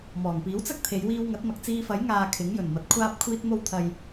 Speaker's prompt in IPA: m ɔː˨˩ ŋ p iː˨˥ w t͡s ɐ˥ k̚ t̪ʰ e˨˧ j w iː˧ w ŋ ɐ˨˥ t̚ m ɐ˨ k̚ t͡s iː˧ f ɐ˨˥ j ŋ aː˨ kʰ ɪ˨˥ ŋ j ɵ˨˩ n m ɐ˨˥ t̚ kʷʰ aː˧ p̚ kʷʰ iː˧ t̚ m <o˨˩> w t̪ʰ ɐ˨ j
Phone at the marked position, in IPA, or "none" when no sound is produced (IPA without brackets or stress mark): o˧